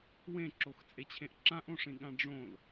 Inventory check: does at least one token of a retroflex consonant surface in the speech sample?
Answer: yes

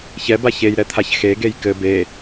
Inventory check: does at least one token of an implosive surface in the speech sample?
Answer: no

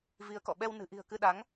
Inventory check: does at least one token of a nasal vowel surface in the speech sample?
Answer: no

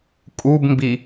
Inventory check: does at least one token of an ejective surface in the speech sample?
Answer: yes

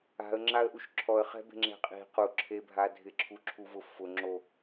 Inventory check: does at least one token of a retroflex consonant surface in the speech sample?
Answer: no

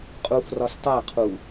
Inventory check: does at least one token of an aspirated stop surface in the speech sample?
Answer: yes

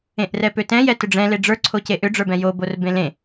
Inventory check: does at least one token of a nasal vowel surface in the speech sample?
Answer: yes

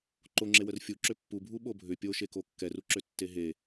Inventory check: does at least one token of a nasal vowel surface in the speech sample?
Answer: no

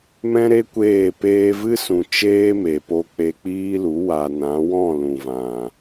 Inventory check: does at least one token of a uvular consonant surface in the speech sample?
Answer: no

